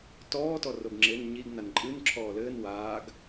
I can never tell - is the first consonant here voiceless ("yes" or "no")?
yes